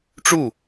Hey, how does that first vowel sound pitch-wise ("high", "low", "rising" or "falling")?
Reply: falling